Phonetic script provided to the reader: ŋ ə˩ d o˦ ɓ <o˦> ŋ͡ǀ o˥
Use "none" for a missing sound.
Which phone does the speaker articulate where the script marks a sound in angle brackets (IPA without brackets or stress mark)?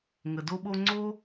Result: o˦